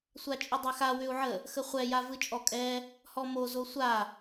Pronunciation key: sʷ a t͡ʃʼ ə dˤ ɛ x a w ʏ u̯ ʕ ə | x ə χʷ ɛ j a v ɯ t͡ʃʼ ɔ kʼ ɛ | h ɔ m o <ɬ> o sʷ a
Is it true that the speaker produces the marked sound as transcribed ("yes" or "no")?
no